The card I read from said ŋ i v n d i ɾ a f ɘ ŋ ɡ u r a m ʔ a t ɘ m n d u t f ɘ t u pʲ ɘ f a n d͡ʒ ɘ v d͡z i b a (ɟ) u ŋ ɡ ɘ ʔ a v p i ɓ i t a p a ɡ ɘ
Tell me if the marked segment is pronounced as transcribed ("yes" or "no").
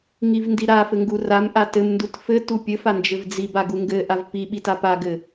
no